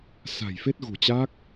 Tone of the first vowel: low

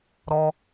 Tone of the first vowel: high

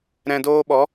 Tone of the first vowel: low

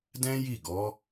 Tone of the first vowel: high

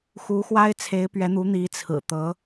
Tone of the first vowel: rising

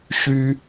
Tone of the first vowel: high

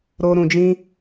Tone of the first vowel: high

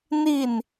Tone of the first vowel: falling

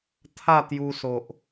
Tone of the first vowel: falling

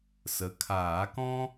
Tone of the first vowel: rising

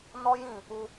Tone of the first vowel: high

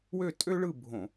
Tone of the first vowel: falling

